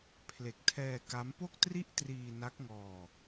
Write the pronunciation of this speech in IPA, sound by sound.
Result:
pʰle˨˩k̚tʰɛː˧ ka˦˥m po˥˩k̚ tri˥˩ʔ triː˧ na˦˥k̚ŋɔː˧

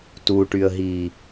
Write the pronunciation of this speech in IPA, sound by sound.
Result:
tuʈyə̯ɦi

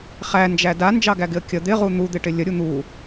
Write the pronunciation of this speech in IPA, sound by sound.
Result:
χænd͡ʒæ dand͡ʒɑɡæɡɪə̯ kʲə d̪ɪʁu n̪ud̪ɪʈɪ lʲəɾʲu n̪u

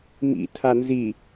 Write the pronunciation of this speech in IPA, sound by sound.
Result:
mḭtʰa nzi

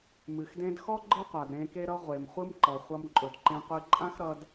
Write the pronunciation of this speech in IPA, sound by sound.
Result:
mɨ˩xdẽ˧dxɔ˥ ɡ͡ǃɯ˥qʷa˩d ɾẽ˧ke˥ɾʌ˥ ʁʷe˩mχʷɯ˥mǃʌ˩ χʷʌ˧mǃʼɵ˩dǃẽ˧qʷɨ˧ ǃʼã˥xɾʌ˧d

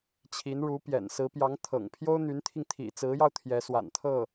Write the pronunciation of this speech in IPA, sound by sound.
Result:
t͡ɕʰi˧˥nɻu˧˥pjɛ̰˨˩nsɹ̩˧˥ pjɑ˧˥ŋt̪ʰɤ̰˨˩ŋ pʰjo˥ʊ̯n̪y˧˥nt̪ʰi˧ŋ t̪ʰḭ˨˩t͡sɹ̩˧˥jɑ˧ʊ̯ t̪ʰjɛ˧˥swa̰˨˩nt̪ʰɤ˥˩

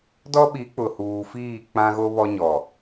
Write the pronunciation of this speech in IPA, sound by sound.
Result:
dɔ˦ɓi˨˦k͡pʊ˨ huː˨fiː˦˨ k͡pã˦ɣo˦βɔ˦ ɲɔ˨

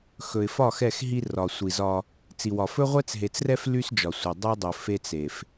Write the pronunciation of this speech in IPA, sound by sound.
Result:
xɵ˨ɪ̯fɒ˦˨x ɛ˦˨x ɦi˦ rɒ˨sʷi˨zɒ˦ | t͡si˨wɒ˨ fɵ˦ʁʷɛ˦t͡sɦe˨t͡srɛ˦f ly˦sd͡ʒɒ˨sʷe˨ dˤe˦dˤɵ˨ fe˦t͡se˨f

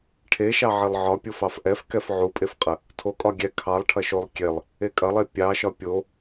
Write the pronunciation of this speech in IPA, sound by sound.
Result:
ʈʰeʃɑʕilˠ ʕɒpʲof ɑfʔɛfkɛf ʕupʼefqʼə | tʰokʼɒ ɡʲɛ kʰɑlˠʈʰɐʃolˠ kʲelˠ | ekʼɐlˠe pʲɑʃɒ pʲo

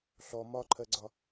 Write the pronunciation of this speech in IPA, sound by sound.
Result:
ɬɔ mɒǃʰɜɡ͡ǀɒ

